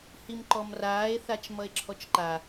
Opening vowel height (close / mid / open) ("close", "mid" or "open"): close